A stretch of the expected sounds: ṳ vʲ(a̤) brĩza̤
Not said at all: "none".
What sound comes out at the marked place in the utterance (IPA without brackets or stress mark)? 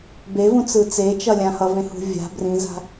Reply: a̤